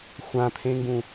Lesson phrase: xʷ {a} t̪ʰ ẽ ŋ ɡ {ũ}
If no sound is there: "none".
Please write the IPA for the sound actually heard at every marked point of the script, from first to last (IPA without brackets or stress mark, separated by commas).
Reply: ã, ũ